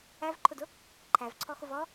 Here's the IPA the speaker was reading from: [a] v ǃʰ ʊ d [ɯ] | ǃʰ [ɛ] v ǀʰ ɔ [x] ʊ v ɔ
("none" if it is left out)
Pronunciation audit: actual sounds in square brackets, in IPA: æ, ʊ, æ, x

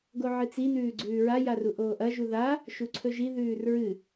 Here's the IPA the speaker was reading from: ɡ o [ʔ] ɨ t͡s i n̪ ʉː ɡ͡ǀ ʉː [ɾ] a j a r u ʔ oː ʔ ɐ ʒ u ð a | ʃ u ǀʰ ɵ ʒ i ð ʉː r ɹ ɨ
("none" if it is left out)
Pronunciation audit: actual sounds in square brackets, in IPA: ʕ, ɹ

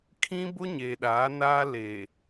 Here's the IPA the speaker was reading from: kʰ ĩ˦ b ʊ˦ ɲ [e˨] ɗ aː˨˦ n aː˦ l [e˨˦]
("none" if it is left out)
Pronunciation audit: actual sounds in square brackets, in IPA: e˨, e˨

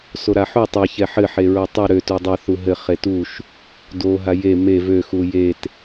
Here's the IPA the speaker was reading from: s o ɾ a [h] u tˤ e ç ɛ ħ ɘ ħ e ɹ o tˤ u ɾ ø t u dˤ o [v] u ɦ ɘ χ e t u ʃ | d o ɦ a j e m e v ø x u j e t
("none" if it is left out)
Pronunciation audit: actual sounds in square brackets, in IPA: ħ, θ

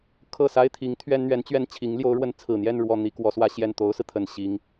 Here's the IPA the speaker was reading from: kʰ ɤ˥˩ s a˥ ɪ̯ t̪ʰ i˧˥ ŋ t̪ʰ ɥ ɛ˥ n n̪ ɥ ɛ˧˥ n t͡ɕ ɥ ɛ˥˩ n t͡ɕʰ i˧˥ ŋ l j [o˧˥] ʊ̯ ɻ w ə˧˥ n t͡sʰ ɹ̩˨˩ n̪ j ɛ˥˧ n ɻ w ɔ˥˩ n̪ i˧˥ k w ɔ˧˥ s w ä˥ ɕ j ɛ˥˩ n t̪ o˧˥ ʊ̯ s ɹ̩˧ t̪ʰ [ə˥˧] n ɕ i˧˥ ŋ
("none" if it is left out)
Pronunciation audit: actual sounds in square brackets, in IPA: o˧˥, ə˨˩

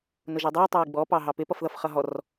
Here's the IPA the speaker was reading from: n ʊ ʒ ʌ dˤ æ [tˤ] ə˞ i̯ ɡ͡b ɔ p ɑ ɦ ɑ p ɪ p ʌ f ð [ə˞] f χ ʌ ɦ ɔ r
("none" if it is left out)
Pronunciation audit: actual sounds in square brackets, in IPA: tˤ, ʌ

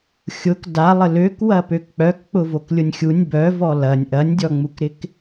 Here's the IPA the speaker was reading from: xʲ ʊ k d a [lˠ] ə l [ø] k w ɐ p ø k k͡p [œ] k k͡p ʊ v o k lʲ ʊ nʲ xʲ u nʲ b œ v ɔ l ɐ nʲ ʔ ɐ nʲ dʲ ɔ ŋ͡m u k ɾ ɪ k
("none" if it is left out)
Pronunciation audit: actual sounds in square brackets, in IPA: lˠ, ø, œ

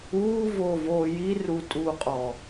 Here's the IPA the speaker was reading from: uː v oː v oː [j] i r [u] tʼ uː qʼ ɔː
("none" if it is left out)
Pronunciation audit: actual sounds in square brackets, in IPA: j, u

